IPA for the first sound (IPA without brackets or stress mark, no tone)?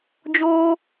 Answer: d͡ʒ